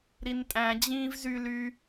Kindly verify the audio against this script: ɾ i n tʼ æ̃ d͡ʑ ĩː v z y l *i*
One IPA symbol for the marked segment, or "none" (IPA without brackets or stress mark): y